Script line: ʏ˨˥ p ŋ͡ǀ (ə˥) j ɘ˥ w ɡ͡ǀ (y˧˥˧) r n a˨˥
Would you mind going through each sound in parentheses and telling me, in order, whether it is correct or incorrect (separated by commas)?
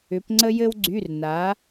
correct, correct